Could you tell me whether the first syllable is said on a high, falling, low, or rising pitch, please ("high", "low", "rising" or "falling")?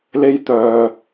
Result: high